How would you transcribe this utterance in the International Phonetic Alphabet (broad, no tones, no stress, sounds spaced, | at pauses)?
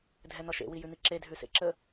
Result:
dʱ ɛ n̪ ɒ ʃ ḛ w i j ʉ n̪ i ǁ e dʱ ʉ s ḛ ǁ ə